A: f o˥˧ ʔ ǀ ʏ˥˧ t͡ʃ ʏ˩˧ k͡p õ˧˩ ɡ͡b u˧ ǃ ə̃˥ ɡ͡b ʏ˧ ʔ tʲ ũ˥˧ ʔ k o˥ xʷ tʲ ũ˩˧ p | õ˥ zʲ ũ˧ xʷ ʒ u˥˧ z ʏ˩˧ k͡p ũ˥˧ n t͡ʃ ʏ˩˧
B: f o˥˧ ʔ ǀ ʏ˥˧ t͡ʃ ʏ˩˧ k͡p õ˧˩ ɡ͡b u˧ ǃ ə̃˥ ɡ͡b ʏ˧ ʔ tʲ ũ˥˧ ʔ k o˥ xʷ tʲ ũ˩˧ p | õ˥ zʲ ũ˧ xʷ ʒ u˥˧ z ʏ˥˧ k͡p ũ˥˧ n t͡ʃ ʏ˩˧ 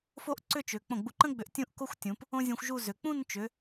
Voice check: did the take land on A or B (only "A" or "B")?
A